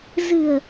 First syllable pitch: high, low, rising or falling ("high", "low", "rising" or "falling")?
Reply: low